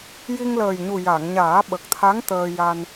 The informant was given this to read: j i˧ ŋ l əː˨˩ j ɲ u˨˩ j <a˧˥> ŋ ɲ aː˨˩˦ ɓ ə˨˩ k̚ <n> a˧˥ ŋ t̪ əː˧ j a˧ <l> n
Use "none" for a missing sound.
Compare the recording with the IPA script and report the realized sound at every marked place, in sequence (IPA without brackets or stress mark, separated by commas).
a˨˩˨, t̪ʰ, none